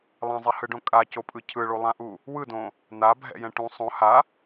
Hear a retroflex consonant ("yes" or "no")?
yes